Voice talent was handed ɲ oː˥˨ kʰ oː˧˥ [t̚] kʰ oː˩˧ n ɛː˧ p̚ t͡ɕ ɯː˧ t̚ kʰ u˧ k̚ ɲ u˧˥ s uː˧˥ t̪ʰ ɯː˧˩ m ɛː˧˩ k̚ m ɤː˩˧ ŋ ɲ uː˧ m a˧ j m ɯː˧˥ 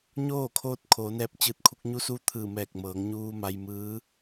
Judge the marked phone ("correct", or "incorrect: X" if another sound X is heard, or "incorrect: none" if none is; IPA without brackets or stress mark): correct